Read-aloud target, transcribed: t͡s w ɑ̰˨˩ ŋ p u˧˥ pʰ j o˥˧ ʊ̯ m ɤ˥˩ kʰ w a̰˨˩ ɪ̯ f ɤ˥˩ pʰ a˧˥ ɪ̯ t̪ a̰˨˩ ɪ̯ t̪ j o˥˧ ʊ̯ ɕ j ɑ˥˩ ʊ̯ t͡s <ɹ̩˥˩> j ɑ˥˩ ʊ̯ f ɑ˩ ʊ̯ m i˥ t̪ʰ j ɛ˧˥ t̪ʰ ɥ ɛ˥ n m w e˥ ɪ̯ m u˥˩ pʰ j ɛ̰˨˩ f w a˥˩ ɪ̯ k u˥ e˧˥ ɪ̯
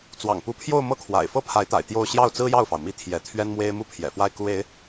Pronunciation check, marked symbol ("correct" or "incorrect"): incorrect